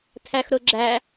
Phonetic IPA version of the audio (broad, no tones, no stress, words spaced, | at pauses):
tʰæxɾʊɡ͡ǁæ